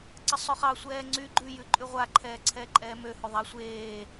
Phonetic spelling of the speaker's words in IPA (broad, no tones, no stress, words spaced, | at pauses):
ǀəsˤøχɑ sʷɛːŋ͡ǀy ɡ͡ǃʉ jʉǃʼʉʁʷa ǃʰɛːǀʰɛːǃʼɛːmø hʉðˤa sʷeː